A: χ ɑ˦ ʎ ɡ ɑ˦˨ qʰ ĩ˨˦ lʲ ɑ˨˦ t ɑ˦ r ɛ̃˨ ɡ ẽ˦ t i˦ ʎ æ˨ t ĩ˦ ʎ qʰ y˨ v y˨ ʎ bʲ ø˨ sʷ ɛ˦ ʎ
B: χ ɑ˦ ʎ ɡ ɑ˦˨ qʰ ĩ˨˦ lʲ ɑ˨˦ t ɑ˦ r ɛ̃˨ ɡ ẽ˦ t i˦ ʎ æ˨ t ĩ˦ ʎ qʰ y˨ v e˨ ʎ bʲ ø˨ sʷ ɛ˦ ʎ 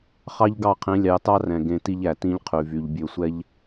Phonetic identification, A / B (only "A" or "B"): A